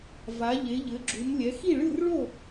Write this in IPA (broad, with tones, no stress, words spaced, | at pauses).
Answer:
va˩˧ʎe˩˧ʎɘ˩˧ɡ͡ǁu˩˧m lʲɛ˩˧xi˥˨ɭɨ˥˨r ɭo˥˨